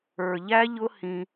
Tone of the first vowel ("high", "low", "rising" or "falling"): low